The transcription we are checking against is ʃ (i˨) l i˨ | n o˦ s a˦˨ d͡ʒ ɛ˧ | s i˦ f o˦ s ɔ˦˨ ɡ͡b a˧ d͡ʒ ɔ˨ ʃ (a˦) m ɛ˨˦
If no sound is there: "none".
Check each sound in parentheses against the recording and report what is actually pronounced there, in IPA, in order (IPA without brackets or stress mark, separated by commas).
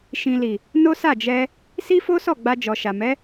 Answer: ĩ˨, a˨